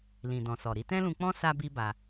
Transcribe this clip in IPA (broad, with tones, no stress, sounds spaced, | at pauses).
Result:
l ĩ˨ d ɔ̃˨ s ɔ˨ ɾ i˧ t ɛ̃˦ l ũ˧ k͡p ɔ̃˦ s a˦ b i˦ b a˧